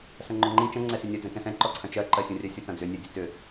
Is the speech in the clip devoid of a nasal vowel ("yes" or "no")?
no